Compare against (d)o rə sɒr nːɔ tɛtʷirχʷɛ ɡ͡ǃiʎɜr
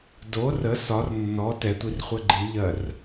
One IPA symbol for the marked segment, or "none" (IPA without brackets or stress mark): d